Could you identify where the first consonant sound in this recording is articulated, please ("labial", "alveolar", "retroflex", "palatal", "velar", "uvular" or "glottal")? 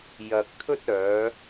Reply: palatal